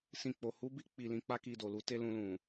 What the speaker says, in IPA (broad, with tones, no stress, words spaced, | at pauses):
sĩ˨k͡po˨ hu˨˦bi˦ k͡pi˧lĩ˧k͡pa˦ ki˧ do˨lu˧ te˦lũ˧lũ˨